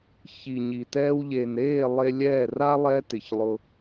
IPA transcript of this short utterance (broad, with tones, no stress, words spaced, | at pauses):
çi˨ ɲi˨tɛː˦w ʎe˨nɾeː˦˨ lˠe˧lʲɛː˦˨ra˦ lˠɛː˦tɪ˨çlˠʊ˧